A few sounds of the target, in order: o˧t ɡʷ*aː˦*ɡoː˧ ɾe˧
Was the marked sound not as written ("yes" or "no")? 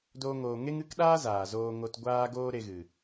yes